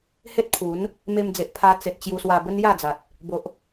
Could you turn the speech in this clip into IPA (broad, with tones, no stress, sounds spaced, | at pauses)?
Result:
h e˦ t̚ pʰ u˨˦ n | m e˧ m d͡z e˨ ʔ pʰ a˧ t͡s e˨ t̚ t͡ɕ j u˧ s w a˧ b ə˦ n j a˥˧ d͡z a˨ t̚ | b o˨ ʔ